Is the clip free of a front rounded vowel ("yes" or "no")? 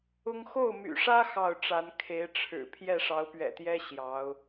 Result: no